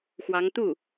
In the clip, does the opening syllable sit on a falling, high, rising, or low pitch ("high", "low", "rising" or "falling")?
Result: rising